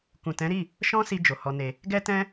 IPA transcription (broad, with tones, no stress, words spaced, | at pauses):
kũ˨tɛ̃˨˦ɾi˦˨ | ʃɔ̃˦si˧ d͡ʒo˨hɔ˧ne˧ | ɡɛ˦tɛ̃˦